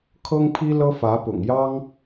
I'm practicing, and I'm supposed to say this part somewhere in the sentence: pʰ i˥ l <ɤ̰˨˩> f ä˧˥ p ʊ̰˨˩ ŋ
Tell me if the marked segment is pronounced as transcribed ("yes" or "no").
no